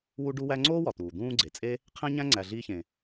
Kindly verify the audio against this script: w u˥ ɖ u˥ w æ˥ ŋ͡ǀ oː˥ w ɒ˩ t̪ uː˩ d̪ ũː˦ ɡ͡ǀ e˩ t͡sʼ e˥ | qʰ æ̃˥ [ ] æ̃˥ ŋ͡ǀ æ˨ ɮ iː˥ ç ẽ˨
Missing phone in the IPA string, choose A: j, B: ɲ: B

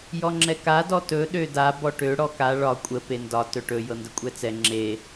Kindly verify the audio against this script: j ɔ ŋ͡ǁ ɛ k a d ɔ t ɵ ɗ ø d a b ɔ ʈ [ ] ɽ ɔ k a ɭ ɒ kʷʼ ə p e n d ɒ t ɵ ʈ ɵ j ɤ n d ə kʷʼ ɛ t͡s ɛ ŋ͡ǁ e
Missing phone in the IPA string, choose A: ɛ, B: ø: B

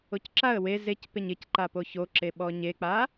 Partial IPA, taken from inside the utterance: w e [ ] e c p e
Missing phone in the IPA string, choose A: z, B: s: A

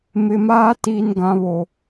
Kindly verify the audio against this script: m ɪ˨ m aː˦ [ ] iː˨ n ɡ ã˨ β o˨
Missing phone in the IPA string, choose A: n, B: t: B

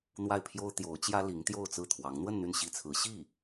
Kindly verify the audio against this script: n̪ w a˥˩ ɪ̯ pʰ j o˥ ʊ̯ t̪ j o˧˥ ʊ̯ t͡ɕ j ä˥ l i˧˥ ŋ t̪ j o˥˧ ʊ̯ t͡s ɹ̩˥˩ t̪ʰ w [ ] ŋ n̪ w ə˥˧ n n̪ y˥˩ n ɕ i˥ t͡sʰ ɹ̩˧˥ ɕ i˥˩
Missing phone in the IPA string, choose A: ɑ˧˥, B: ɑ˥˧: A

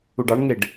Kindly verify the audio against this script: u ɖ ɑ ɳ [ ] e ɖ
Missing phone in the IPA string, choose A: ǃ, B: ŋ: B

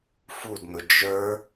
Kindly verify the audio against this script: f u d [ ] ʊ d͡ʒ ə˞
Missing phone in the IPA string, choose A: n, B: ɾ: A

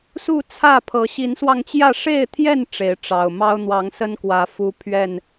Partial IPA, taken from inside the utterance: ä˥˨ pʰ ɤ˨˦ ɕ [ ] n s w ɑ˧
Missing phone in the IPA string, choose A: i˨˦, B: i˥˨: A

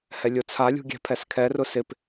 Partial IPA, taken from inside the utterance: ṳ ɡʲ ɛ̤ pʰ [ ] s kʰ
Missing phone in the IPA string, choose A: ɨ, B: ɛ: B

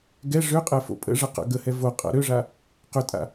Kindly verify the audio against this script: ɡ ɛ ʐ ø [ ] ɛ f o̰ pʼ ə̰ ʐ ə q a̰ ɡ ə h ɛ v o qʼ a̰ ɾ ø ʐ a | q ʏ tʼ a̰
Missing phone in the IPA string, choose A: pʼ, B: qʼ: B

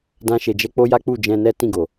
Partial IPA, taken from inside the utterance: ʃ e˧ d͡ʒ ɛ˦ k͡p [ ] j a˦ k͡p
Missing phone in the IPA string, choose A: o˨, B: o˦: B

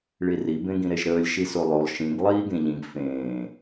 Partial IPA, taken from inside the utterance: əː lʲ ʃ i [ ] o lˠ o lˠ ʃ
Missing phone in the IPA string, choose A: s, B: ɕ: A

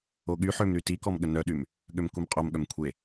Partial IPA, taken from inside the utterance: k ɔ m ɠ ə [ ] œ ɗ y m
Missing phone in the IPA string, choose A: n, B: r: A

